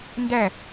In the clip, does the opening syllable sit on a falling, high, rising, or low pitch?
falling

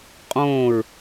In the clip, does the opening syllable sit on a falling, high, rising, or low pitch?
falling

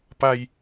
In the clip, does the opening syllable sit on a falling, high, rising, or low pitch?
high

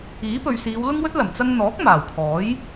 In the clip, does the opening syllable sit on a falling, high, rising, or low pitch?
rising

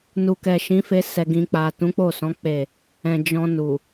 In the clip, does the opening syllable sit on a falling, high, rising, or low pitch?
low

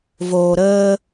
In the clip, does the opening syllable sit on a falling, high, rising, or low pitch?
low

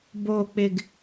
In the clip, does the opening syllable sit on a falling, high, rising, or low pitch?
low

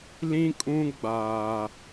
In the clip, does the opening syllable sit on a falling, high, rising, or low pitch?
high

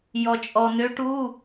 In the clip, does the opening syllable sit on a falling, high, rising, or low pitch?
low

